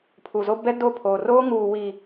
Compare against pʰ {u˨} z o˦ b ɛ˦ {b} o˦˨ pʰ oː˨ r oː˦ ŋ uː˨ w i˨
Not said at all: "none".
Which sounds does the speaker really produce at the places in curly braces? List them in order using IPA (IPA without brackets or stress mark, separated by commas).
u˨, d